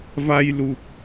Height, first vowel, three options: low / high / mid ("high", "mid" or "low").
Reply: low